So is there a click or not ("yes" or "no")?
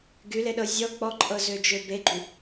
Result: yes